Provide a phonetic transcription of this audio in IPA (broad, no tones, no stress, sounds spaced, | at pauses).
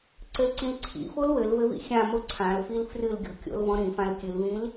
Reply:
ǀ ɘ l ǀ ĩ l ǀʰ ḭ f o l w ɘ l v ɘ v ḭ xʲ ã m o ǀʰ ã l f i l f r ɨ l ɡʲ ɔ̤ kʲ o̰ l v ɔ̃ ɾ ĩ f ã l kʲ ɨ l v ĩ l